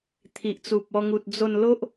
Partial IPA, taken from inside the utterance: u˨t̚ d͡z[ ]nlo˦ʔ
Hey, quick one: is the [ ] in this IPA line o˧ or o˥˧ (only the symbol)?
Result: o˧